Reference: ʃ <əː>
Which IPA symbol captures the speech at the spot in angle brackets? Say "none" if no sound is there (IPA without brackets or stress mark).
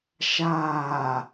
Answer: aː